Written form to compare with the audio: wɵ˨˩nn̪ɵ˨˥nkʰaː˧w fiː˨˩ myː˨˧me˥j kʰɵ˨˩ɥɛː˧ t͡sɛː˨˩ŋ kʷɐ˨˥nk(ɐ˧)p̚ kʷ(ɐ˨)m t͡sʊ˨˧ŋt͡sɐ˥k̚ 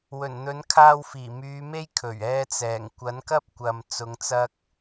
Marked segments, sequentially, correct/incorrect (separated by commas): incorrect, correct